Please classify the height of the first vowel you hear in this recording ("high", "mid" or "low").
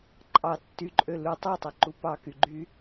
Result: low